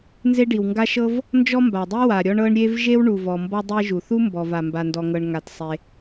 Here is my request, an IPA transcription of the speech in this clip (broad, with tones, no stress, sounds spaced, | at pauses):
n z e˥ ɖ i˩ w ŋ ɡ a˥ ʃ ɤ˥ v | n d͡ʒ ɔ˥ m b a˩ dˤ i˥ w a˩ ɾʲ ɔ˥ ɳ ɤ˥ ɳ ɾʲ e˥ v ʒ e˥ w ɳ u˩ v ɔ˩ m b ɔ˥ dˤ e˥ ʒ u˩ θ u˥ m b ɔ˩ v a˩ m b a˩ n d ɔ˩ ŋ ɤ˩ ɳ ŋ a˩ t sˤ e˩